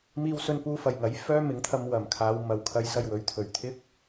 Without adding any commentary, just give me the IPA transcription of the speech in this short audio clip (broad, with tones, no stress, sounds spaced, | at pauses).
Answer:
m iː˧ w s ɵ˧ n p uː˧ f ɐ˨˩ j ŋ ɐ˨˥ j f œː˥ m ɪ˨˥ ŋ t̪ʰ ɐ˧ m w ɐ˨˩ m kʰ aː˨˧ w m ɐ˨˩ w kʰ ɐ˨˧ j s ɐ˨ j w ɵ˨˥ ɥ t̪ʰ ɵ˨˩ ɥ t̪ʰ ɪ˥ k̚